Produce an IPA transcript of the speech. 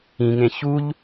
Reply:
ĩ ŋ ẽ ç u ʎ

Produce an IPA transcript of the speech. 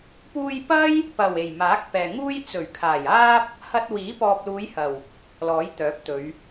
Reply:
p uː˧ j p ɐ˥ j | p ɐ˨˩ w e˨˩ j m aː˨˥ k̚ p ɛː˨ ŋ uː˥ j t͡s ɵ˨˩ ɥ kʰ aː˨˩ j aː˥ p̚ | h ɐ˧ t̚ w iː˨˥ p ɔː˨ p̚ l uː˨˧ j h ɐ˨˩ w | l ɔː˨˥ j t̪ œː˨˥ p̚ t̪ ɵ˨˧ ɥ

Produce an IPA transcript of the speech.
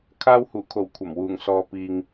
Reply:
kʰ aː˧ w h uː˨˩ kʰ o˨˩ w kʷʰ ɐ˨˩ m w uː˨˩ ŋ s ɔː˨ p iː˨ ŋ

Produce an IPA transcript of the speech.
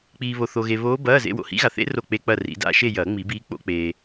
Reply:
k͡p iː˨ β o˨ θ o˨ ɣ e˨ β oː˧˥ b ɐː˧˥˧ z ḛ˧˥˧ w o̰˦˨ h ḭ˧˥ ɣ a˨ θ ḛ˧˥ r o˦˨ k͡p e˧˥˧ k͡p ɐ˦˨ r ḭ˨˩˦ d a̰˦˨ ʃ e˦˨ j ɐː˨˩˦ ŋ͡m i˨˩˦ b iː˧˥ k͡p o̰˧˥ k͡p eː˨

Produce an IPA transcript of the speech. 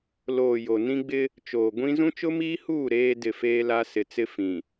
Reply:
l oː˨ j o˨ n ĩ˦ ɡ͡b ɪ˦ | t͡ʃ oː˨ ɡʷ ĩ˦ z ũ˦ t͡ʃ ʊ˦ m iː˦ h uː˦˨ ɾ eː˦ d ɪ˦˨ f eː˦ l a˦ s ɪ˨ t͡s ɪ˦ f ĩ˨

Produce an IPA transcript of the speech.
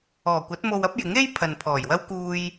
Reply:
ɔː˨˩ kʷ ɐ˨˥ t̚ m o˧ w ɐ˥ p̚ j ɪ˨˥ ŋ e˥ j pʰ ɐ˨ n pʰ ɔː˨˩ j w ɐ˥ w k uː˧ j

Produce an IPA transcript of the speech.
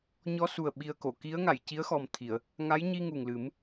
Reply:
ɲ ɔ˧ s u˨˩ ə̯ ɓ i˧ ə̯ k o˨˩˨ k i˧˥ ə̯ ŋ a˨˩˨ j c i˧˥ ə̯ x ɔ˨˩ m t̪ʰ i˨˩˨ ə̯ | ŋ a˧˥ j ɲ i˧ ŋ u˨˩ ŋ l ɨ˨˩˦ m

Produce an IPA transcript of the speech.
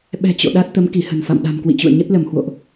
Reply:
ɓ ɛ̤˨˩ t͡ɕ o̰˧˨ ɗ a˦˥ t̚ t̪ ə˨˦ m k i˧˩ h ə̤˨˩ n f a̰˧˨ m ɗ a̤˨˩ m k w ḭ˧˨ t͡ɕ ṵ˧˨ ə̯ ɲ ə˦˥ t̚ l ə˧˩ m h w o̰˧˨ ʔ

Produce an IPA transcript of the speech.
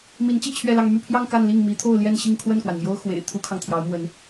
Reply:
m i˧˥ n t͡ɕ i˥˧ t͡ɕʰ ɥ ɛ˥˧ l ɑ˥˧ ŋ m y˥˧ pʰ j ɑ˥˧ ŋ k a˥˧ n l i˥˩ ŋ m i˧˥ t̪ʰ o˥˧ ʊ̯ l j ɛ˥˧ n ɕ i˥˧ ŋ kʰ w ə˥˩ n k w a˩ n m j o˥ ʊ̯ x w ḛ˨˩ ɪ̯ t̪ʰ u˥ kʰ ɑ˨ ŋ t̪ʰ j ɑ˧˥ ʊ̯ m w ə˧˥ n

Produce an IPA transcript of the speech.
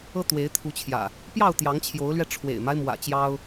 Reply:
ɤ˦ t̪ w e˨˦ ɪ̯ t̪ʰ u˨˦ t͡ɕʰ j ä̰˨˩ | p j ɑ˥˨ ʊ̯ t̪ j ɑ˨˦ ŋ t͡ɕʰ j o˨˦ ʊ̯ l ɥ ɛ˧ ʈ͡ʂʰ w ḛ˨˩ ɪ̯ m a˦ ɪ̯ m w ä̰˨˩ t͡ɕ j ɑ˦ ʊ̯

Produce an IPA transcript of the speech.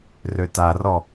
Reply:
r ø t a r ɔ

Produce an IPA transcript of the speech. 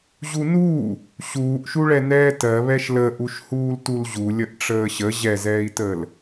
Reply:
ʑ u n uː | ɕ uː ʔ ʃ u ɭ ɛ n ɛː t ɜ β ɛ ʃ l ə ʔ u ʃ h uː l t u l ʑ u lʲ ə ʔ ʈ͡ʂ əː ɕ ə ʑ ɛ z ɛː i̯ t əː l

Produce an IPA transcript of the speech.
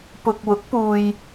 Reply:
p ʊ˨ k̚ w ʊ˨˥ k̚ p uː˨ j

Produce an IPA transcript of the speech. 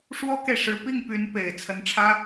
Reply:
ʂ w ɔ˥ k e˨ ɪ̯ ʂ ɻ̩˧˥ p i˥˩ ŋ p y˧˥ n p e˨˩ ɪ̯ t͡sʰ ə˧˥ n ʈ͡ʂʰ ä˥

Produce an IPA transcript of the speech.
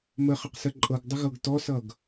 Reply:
m ə χ ə q s ə ǃʼ ɤ ɡ dˤ ə ɣ ɤ ɡ t ɔ s ʌ ɡ

